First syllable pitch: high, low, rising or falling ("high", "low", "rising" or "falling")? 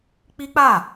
high